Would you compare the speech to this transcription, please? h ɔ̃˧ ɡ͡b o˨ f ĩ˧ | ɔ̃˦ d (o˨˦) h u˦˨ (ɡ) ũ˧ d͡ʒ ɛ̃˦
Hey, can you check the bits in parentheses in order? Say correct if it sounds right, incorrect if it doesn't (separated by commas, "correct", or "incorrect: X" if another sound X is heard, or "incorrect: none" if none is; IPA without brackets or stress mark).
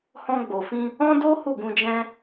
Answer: incorrect: o˦, correct